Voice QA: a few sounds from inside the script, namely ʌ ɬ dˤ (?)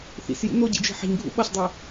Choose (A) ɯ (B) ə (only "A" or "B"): A